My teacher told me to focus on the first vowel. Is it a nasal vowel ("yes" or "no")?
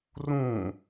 yes